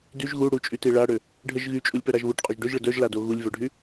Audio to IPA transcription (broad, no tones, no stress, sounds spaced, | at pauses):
d y ʒ ɣ u ɽ u t͡ʃʼ y t i ɭ a ɽ ø | ɖʱ ə ʒ ɣ y t͡ʃʼ u lʲ p œ ɾ a ʒ β u ʈ qʼ o ʒ ɖ ø ʒ ɭ ə d œ ʒ l a d o ɣ u lʲ v œ ɖʱ y